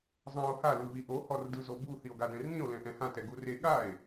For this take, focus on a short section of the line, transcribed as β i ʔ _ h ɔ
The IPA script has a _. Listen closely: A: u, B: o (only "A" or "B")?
B